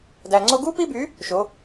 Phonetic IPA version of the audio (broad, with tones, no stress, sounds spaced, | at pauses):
d æ˧ ŋ͡ǀ o˥ ɡ u˥ p i˥ b y˧˥ | ʃ o˧˥